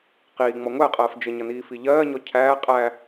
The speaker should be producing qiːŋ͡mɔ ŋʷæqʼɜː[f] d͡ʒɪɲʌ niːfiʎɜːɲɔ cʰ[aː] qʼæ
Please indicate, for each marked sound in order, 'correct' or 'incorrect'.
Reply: correct, incorrect

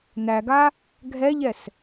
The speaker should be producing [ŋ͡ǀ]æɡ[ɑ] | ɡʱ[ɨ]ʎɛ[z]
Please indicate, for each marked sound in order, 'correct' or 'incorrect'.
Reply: incorrect, incorrect, incorrect, incorrect

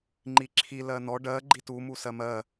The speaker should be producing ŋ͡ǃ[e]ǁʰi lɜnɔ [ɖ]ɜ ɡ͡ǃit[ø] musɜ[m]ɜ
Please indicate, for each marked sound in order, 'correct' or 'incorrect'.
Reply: incorrect, correct, incorrect, correct

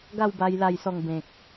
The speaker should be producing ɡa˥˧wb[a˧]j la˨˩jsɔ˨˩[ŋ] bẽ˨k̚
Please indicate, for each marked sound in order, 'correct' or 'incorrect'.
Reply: correct, correct

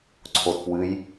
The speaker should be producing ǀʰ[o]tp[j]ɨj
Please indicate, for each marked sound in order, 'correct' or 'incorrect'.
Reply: correct, incorrect

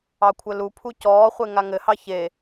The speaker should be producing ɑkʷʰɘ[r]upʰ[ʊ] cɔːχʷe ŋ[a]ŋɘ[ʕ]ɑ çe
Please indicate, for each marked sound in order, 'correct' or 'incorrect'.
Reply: incorrect, incorrect, correct, incorrect

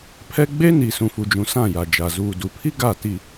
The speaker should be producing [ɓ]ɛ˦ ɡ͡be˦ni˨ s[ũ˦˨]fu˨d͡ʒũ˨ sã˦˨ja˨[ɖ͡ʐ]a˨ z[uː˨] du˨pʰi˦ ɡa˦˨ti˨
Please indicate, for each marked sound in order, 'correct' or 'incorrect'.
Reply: incorrect, incorrect, incorrect, correct

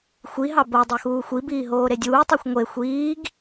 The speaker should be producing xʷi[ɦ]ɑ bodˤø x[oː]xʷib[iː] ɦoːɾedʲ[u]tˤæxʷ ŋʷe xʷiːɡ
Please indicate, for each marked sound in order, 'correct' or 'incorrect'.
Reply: correct, incorrect, correct, incorrect

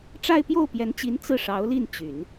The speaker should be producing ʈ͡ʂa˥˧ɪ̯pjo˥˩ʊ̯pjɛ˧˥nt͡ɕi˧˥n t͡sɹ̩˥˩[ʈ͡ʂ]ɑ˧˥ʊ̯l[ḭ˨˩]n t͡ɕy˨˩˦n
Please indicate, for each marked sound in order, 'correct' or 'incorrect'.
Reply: incorrect, incorrect

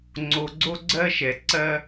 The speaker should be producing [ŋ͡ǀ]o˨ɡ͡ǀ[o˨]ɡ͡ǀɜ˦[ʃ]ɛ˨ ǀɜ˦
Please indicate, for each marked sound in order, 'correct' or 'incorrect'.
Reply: correct, incorrect, correct

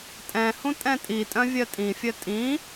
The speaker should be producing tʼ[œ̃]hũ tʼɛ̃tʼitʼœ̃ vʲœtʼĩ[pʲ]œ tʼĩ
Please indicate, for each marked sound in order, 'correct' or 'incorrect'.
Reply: incorrect, incorrect

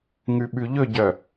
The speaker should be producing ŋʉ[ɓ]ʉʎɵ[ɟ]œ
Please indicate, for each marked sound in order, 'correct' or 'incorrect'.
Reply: correct, correct

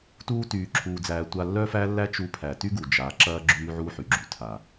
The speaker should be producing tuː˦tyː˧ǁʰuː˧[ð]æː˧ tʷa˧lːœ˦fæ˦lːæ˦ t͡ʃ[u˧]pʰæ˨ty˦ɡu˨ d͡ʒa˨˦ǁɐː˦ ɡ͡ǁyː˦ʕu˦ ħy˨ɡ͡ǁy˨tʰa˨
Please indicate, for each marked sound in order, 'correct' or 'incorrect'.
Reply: incorrect, correct

